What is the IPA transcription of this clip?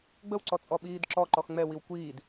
ɡ͡b ə w ǀ ɔ t͡sʼ ɔ ɓ iː d ǁ ɔ ǃ ɔ x ŋ͡m ɛ w i w kʷ iː d

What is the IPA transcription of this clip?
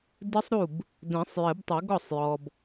d ɨ˦˥ sˤ ɾ u˥˩ b | d ɛ̃˨˩˦ sˤ j ɘ˨˩˦ b tˤ ɘ˨˩˦ ɡ ɔ˥˩ sˤ j ɔ˨ b

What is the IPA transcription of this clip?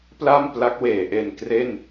p l a˥˩ m p l a˦˥ k̚ w eː˩˦ ʔ e˧ n k r e˥˩ n

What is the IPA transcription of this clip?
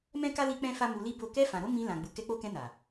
m ɛ̃˦ k a˦ l i˦ k͡p ɛ̃˦ f a˦ m u˧ l i˦ b o˦˨ k ɛ˧ f ã˨ ɾ o˧ m ĩ˧ l ã˨ ɡ͡b u˨ k ɛ˧ k͡p o˧ k ɛ̃˧ n a˨

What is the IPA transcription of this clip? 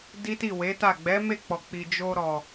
d i˦ t i˦˨ w e˨˦ t a˦˨ ɡ͡b ɛ˨˦ m e˦˨ k͡p ɔ˨ k͡p i˨ d͡ʒ o˧ ɾ ɔ˨

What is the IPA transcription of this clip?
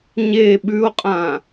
ɲ e ɓ ʉ o̯ qʼ ã

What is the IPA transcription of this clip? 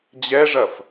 d͡ʑ ɛ ʐ ɐ f

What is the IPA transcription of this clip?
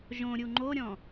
ʒ õ ɾʲ u ŋ͡ǃ o ɾʲ ɔ̃

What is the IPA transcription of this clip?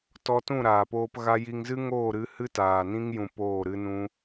t ɔ˧ t ũ˦˨ ɾ aː˨ p oː˧ p ɣ a˧ j i˧ ŋ z ɨ˦ ŋ oː˦˨ ɾ ɨ˧ h ɨ˦ t aː˨ n ĩ˦ ŋ j ũ˧ p oː˦˨ ɾ ɨ˦ n ũ˦

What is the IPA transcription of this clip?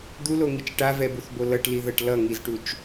d̪ u l o ŋ i t͡ʃ ʈ a v ɛ b u θ b o l ʌ ʈ l i ð ʌ ʈ l ʌ ŋ i z ʈ u t͡ʃ

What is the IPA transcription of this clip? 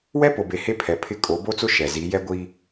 w ɛ˦ p o˨ b e˨ h e˦ pʰ ɛ˨ pʰ ɪ˦ kʼ o˨˦ b o˦ t͡s ʊ˦ ʃ ɛ˨ z i˨˦ j ɛ˦ ɡʷ i˦

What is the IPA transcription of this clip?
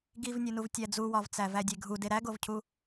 ɡ i v nʲ u n u v tʲ æ d͡z u w ɒ v t͡s æ v æ dʲ e ɡʱ u d e ɾ æ ɡ o v cʰ u

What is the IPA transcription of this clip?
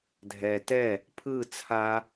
dʱ ɛ t ɛ | pʰ ɯ t͡sʰ a

